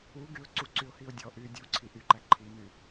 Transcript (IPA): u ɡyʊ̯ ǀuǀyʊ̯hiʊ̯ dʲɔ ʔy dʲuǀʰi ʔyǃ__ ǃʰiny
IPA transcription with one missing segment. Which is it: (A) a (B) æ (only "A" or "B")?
B